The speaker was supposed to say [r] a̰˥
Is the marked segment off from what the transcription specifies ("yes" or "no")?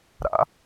yes